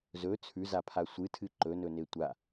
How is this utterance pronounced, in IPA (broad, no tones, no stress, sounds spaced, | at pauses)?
z ɵ t͡sʰ ʉ z a pʰ a sʷ ɨ tʰ ɨ ǃ ɵ n ɵ n e tʷ a